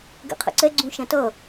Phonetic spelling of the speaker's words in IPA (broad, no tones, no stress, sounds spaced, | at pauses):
ɡ ɛ̰ qʰ ə̰ ǀ ɛ ɡ͡ǀ ũ ʃ æ̃ t ʌ